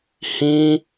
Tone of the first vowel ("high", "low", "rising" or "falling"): high